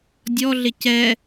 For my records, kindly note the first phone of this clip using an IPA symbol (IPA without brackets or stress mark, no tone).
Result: dʲ